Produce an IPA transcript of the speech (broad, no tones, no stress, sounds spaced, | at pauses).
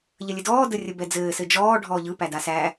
ʎ ə lʲ ɘ d ɔː d ə rʲ ə b ɛ d͡z ɘː s ɘ d͡ʒ ɔː ɖʱ ɔː ʎ ɯ p æ d a s æ